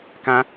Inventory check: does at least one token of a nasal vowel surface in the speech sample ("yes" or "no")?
yes